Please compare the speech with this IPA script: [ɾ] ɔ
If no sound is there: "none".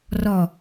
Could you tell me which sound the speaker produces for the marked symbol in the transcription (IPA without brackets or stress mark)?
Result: r